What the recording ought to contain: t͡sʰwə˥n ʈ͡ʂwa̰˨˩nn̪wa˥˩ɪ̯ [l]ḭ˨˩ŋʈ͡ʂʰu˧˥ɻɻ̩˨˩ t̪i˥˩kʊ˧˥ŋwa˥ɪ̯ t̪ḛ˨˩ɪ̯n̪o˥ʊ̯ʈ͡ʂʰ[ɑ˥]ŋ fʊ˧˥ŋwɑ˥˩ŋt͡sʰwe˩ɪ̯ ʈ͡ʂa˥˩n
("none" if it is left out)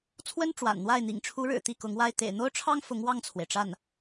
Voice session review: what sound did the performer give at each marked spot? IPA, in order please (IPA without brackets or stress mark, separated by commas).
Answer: n̪, ɑ˥